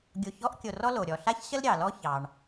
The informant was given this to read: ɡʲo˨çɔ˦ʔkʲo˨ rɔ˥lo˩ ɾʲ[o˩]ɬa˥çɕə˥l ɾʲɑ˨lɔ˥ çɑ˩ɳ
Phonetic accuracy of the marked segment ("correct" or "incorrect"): incorrect